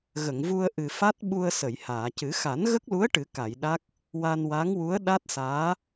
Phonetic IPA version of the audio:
ɣə˨˩˨ŋvu˧ə̯ ʔɨ˨˩fa˦˥t̚ɓu˧ə̯ sə˨˩˨jhaː˨˩˨cɨ˨˩˦ xa˨˩˦nɣə˦˥k̚lu˧˥ə̯ ʈɨ˨˩˦ka˨˩˨jɗa˦˥k̚ | wa˧nwa˧˥ŋwu˧˥ə̯ ɗa˦˥t̚ saː˧˥

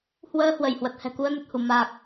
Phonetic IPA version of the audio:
hwəː˧ hwə˧˩jhwə˨˩t̚hɛ̤˨˩ ku˧ə̯nə˨˩t̚hu˧˩ ma˨˩k̚

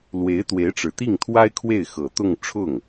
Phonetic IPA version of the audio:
lwe˧˥ɪ̯t̪we˧˥ɪ̯ʈ͡ʂɻ̩˨˩ t̪i˥˩ŋt̪ʰwa˥ɪ̯ kʰwe˥˩ɪ̯xɤ˨˩t̪ʊ˥˧ŋ ʈ͡ʂʰʊ˥˩ŋ

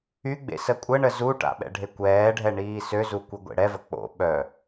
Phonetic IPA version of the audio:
yɡ͡bḛ səkʷʼəɳə zuʈa̰ ɓɛ̰ɖʱekʷɛːɖʱɛ ɳiːsøzu kʷiɡʷḛɽɛvə k͡po̰ ɓœ

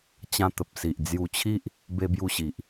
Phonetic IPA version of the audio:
t͡ɕã˧t̪ə˨p̚si˨ʔ d͡zju˧t͡ɕʰi˦ʔ | be˧bju˧ɕi˨ʔ

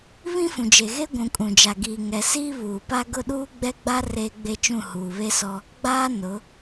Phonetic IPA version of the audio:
βĩ˦fũ˨d͡ʒe˨ɣe˦ ɡʷũ˨kʼũ˨d͡ʒa˨ ɡiː˨ŋɛ˨ siː˦βuː˨pa˦ ɡʊ˦˨ɗuː˦ɡ͡bɛ˦ɡ͡ba˦ reː˦ɡ͡be˦t͡ʃũ˦˨ huː˨βe˦sɔ˦ | ɡ͡baː˦ nʊ˨˦

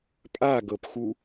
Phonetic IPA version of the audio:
pʼaɡɤpxu

